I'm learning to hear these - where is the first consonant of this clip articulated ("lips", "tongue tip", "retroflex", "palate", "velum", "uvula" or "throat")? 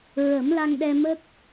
tongue tip